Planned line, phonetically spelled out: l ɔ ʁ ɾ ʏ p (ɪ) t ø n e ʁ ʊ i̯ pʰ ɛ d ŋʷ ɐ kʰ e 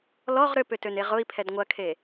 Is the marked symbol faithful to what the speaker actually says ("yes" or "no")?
no